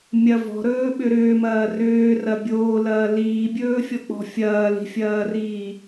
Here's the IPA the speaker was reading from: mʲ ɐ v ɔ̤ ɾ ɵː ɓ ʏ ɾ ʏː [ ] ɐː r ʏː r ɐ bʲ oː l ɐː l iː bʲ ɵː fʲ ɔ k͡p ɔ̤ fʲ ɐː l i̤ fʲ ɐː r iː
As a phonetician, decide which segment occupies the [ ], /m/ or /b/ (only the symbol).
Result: m